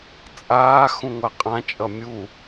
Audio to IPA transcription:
t͡sʼ aː x ũ ŋʷ a qʼ ã t͡ʃʼ ʌ mʲ u

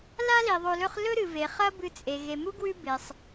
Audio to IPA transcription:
l a˥ l i˩ ðˤ o˨ l ɵ˦ χ l ɵ˦ ɾ ɨ˩ v e˩ χ ɐ˦ b ɨ˨ t͡sʼ e˩ ɣ e˩ m u˥ ɡ w ʉ˦ b e˩ sˤ

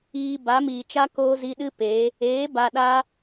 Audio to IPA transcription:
iː˧ b a˨˦ m iː˨ t͡ʃ a˦ k oː˦ z i˧ ɗ ɨ˦ p e˨˦ | eː˨˦ b a˧ ɗ a˦

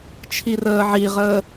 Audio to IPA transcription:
t͡ʃʰ i r əː ʕ i ʁ əː

